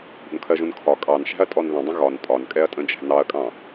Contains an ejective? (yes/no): yes